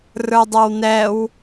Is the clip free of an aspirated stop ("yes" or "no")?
yes